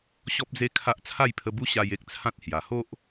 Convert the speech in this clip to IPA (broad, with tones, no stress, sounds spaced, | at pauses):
ɕ ɔ˦ p̚ d͡z e˦ kʰ a˦ ʔ t͡sʰ a˥˧ j pʰ ə˧ b u˦ ɕ a˧ j e˦ k̚ t͡sʰ ã˦ t̚ h j a˨˩ h o˦ ʔ